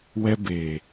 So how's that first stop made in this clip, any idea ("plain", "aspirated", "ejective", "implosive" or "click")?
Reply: plain